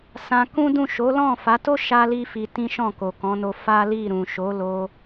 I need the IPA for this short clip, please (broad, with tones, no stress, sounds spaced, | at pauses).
s ã˧ k ũ˦ d ũ˦˨ ʃ o˨˦ l ɔ̃˦˨ f a˨˦ t o˦ ʃ a˦ l i˦ f i˧ t ĩ˦ ʃ ɔ̃˦˨ k o˨ k ɔ̃˨˦ n o˧ f a˦ l i˦˨ ɾ ũ˨ ʃ o˨˦ l o˧